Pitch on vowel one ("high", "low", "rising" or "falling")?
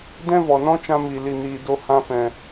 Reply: high